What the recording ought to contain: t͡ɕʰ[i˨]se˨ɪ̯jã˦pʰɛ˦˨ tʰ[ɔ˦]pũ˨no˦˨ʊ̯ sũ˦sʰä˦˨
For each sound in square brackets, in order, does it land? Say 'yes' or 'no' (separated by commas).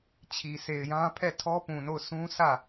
yes, yes